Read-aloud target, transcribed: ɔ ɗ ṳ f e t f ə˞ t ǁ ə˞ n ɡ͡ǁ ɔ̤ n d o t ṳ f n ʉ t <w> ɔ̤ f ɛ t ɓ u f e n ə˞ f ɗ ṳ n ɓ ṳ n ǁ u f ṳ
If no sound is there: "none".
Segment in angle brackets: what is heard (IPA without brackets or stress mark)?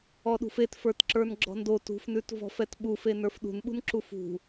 v